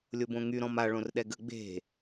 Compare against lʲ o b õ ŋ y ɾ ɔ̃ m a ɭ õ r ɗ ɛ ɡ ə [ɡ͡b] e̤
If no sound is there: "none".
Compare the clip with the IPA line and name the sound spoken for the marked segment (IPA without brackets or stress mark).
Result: ɡ͡b